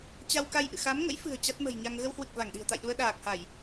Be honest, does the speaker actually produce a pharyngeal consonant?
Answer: no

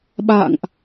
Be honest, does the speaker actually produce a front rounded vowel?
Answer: no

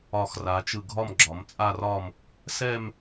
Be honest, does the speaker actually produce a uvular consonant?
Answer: no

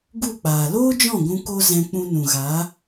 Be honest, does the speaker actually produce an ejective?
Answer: no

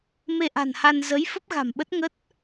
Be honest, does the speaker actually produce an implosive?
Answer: yes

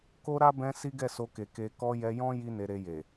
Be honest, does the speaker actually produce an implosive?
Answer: no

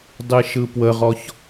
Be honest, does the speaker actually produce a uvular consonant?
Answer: yes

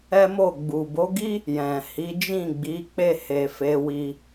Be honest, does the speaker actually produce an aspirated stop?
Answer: no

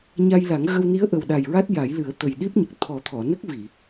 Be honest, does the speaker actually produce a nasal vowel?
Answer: no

